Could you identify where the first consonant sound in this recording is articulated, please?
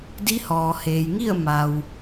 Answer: alveolar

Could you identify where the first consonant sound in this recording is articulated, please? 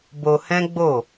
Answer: labial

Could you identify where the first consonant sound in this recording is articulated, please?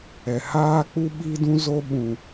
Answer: glottal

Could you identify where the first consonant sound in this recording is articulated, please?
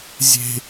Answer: alveolar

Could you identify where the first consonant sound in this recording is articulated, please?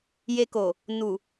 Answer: palatal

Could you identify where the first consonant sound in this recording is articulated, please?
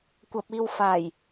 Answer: velar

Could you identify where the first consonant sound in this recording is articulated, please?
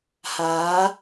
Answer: glottal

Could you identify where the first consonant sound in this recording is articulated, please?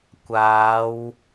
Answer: velar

